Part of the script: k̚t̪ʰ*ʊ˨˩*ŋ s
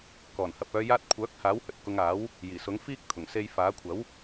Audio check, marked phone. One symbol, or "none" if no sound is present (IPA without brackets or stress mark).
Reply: ʊ˨˩